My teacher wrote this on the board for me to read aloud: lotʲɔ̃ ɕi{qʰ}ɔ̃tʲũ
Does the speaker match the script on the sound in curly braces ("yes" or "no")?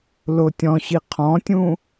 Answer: yes